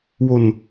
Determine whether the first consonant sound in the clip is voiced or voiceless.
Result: voiced